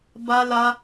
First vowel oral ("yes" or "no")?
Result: yes